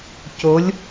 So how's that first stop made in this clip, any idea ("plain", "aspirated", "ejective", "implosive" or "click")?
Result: plain